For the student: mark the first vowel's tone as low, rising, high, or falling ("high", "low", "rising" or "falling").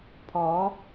rising